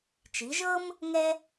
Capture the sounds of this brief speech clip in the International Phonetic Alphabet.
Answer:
t͡ʃi˨˦ʒɤ˥m | ŋɛ˥

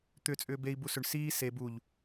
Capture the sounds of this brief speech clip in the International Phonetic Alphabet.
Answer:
t̪ʏ t͡sʼʏːbei̯ busʏɳ siː se buʎ

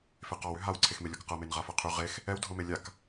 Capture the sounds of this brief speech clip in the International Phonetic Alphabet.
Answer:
feqɔw ʏɦawǀʰexme lʲɔkqɤmen ʁafɤqʰy ʁex | ɛwdʱɤme lʲak

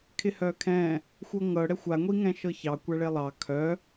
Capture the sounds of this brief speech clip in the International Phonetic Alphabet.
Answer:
kʰɪhœkʰɛ̃ | xʷɤŋɤ ɽɛxʷa ŋʷiŋɛ̃ʃɤçɑ kʷaɭelˠɑ kʰœ

